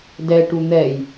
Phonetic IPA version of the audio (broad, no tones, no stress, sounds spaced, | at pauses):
d ɛ ʈ u n̪ ɛ j